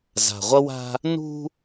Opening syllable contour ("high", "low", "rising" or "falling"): low